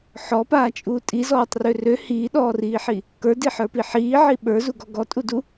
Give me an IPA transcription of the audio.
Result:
ħ ɔ p aː t͡ʃʼ uː tʼ i z ɔː tˤ r ø r ø h iː ɗ ɔː r iː ħ i | k ə˞ d i ħ ə˞ p i ħ iː ʕ i ɓ ə˞ z u ɡ ɔ ɡ ɔ tʼ u d u

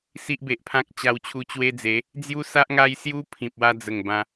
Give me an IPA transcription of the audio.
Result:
s i˦ ʔ b e˨ ʔ pʰ ã˦ k̚ t͡ɕ a˧ w t͡ɕʰ u˧ t͡ɕ w e˦ d͡z e˨˦ | d͡z j u˦ s a˦ ʔ ŋ a˦ j s j u˦ pʰ ĩ˨ p̚ w a˧ d͡z ə˨˩ ŋ b ã˧

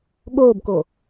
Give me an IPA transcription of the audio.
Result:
ɠ oː b k o

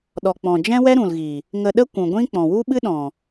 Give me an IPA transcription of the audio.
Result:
ɗ ɔ˨ k͡p ɔ̃˨ d͡ʒ ɛ̃˦ w ɛ˦ ɾ ũ˨ l ɣ i˨ | ŋ ə˧ ɗ ə˦ kʷ ũ˨ ɡʷ ĩ˦ k͡p ɔ̃˨ w u˦ ɓ ɨ˦ ɗ ɔ̃˨

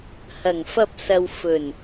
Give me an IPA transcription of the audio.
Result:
h ɐ˨˩ ŋ f ɐ˧ p̚ s ɐ˨ w f ɵ˨˩ n

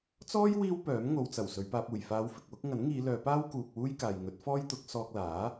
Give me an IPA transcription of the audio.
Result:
t͡s ɔː˥ j w iː˥ w p œː˨˥ m ŋ o˨ w t͡s ɐ˨˩ w s ɵ˨˧ ɥ p aː˧ p̚ uː˨˩ j f aː˨˧ w f ɪ˨ k̚ w ʊ˥ k̚ ŋ ɐ˨˥ n ŋ iː˨˧ l œː˨˧ p aː˥ w k uː˨ k̚ w uː˥ j k aː˨ j ŋ ɵ˨˥ t̚ f ɔː˥ j t̪ ʊ˨˥ k̚ s ɔː˧ k̚ l aː˨˥

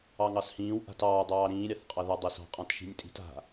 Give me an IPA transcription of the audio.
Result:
ɑ ŋ ɑ s h ĩː w ʔ a̤ t ɑː dˤ ɑː ɾ ĩː ɾʲ ɑ θ qʼ ɑ ð a dˤ e s ɑ̤ qʼ ɑ̃ t ʃ i̤ nʲ tʼ i̤ t a̤

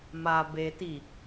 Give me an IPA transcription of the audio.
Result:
m a b e t i

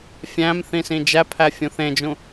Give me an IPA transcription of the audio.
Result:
fʲ æ̃ m θ ĩ s ĩ d͡ʒ æ pʰ æ fʲ ũ θ ẽ d͡ʒ ũ

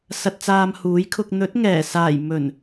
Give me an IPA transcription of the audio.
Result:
s ɐ˨ t̚ t͡s aː˧ m h uː˨˥ j kʰ ʊ˧ k̚ n̪ ɵ˨˥ t̚ ŋ ɛː˨˩ s aː˨˩ j m ɵ˨˩ n

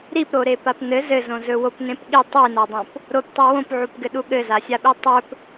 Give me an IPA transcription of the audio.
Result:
ɾ i p ɾ o ɾ e p a p n ɘ z ɘ z õ z ɵ w o p n ẽ p ɠ i tˤ i n a dˤ õ p | ɾ o p tˤ ɵ w õ p ʕ u p ɡ ɘ ɗ u ɠ ɘ z a sʲ a ɓ i tˤ ɵ p

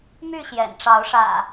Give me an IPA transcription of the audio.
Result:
m y˥˨ ɕ j ɛ̰˨˩ n ʈ͡ʂ ɑ˨˦ ʊ̯ ʂ ä̰˨˩

